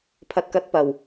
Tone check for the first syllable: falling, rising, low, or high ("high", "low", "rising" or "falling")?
low